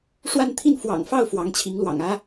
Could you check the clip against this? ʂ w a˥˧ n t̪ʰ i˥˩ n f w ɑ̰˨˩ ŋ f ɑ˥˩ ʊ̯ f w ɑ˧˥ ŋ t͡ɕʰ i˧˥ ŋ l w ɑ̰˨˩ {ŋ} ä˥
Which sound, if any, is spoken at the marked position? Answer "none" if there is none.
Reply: ŋ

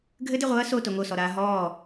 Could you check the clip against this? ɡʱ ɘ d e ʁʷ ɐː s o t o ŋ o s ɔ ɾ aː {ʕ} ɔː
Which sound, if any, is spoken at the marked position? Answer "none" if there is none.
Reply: ɦ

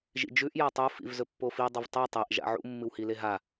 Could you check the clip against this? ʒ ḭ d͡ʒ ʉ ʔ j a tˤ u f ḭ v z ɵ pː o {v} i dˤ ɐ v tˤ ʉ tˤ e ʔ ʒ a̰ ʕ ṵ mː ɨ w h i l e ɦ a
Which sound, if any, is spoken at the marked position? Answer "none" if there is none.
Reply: f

